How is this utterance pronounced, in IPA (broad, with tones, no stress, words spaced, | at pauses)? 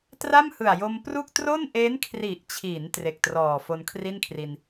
tra˥˩mhɯ˨˩a̯jo˧mpru˥˩k̚ tro˥˩nʔe˦˥nkʰri˨˩ʔt͡ɕʰi˩˦n tre˨˩k̚trɔː˨˩ fo˧nkʰri˥˩nkʰri˧n